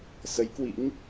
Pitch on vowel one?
rising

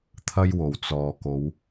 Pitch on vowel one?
high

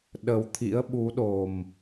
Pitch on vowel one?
low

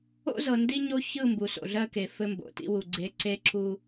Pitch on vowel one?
high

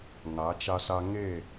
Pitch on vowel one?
rising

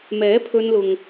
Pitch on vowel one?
rising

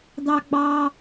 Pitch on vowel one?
high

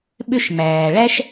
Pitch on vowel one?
high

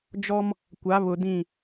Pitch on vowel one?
high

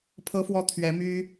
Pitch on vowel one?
high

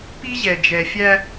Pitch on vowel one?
high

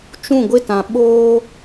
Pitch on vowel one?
falling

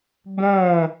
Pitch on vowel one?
falling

